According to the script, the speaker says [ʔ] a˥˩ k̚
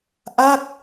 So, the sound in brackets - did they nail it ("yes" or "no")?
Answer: yes